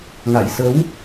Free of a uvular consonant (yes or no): yes